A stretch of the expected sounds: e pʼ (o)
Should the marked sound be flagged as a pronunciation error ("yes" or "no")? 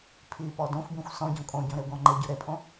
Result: yes